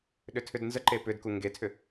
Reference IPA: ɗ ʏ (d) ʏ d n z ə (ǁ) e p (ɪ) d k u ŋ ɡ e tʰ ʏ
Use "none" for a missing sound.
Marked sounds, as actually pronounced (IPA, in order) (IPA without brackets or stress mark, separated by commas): tʰ, ǃ, ʏ